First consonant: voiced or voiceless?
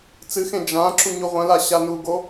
voiceless